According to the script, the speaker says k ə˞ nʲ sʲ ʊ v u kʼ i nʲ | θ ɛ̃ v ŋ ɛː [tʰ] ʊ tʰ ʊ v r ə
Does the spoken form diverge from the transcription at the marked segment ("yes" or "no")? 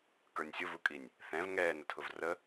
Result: yes